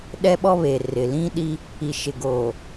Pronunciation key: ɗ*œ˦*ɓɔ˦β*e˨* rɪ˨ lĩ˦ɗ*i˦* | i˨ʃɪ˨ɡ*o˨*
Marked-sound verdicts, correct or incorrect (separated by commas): incorrect, correct, correct, correct